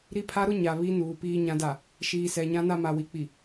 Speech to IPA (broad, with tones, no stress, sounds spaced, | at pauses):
ɾ i˦ pʰ a˦ ɾ ʊ˦ ɲ a˨ β i˦ n uː˨ p iː˨ ɲ ã˨ d a˨ | ʃ iː˨ s ɛ˨ ɲ ã˦ n a˦ m a˨ w i˨ k͡p i˨